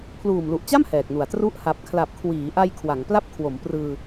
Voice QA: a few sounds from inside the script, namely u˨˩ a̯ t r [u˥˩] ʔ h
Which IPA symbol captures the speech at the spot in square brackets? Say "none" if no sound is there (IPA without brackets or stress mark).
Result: u˥˩